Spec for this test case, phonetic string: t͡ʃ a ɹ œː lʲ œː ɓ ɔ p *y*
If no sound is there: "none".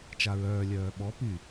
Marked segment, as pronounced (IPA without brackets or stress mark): y